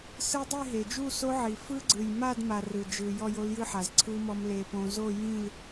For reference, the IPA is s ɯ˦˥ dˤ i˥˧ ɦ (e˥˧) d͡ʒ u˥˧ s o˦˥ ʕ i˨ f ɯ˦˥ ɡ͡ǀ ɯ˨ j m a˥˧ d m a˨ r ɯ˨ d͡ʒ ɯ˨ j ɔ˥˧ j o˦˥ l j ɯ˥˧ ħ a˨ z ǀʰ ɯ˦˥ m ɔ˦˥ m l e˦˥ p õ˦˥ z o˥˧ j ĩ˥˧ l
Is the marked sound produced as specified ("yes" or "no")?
no